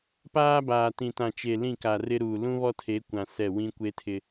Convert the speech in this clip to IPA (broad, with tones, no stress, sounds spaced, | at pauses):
p aː˦ b aː˨ t ĩ˨ t ã˨ t͡ʃ e˨ l ĩ˦˨ k a˨ r ɪ˦ ɾ uː˨ l ũ˦ β ɔ˦ tʰ e˨˦ kʷ ã˨ s ɛ˦˨ w ĩ˦ kʷ e˦ tʰ ɪ˨